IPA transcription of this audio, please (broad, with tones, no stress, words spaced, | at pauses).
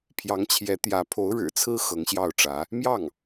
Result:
pʰjɑ˧˥ŋt͡ɕʰjɛ˧˥t̪jä˧˥ pʰo˧˥ʊ̯ɻɻ̩˨˩t͡sʰɹ̩˥ xɤ˧˥ŋɕjɑ˥˩ʊ̯ʈ͡ʂä˧˥ | mjɑ˥˩ŋ